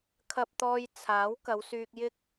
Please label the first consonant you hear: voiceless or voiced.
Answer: voiceless